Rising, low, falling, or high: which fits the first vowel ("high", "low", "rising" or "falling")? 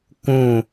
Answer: falling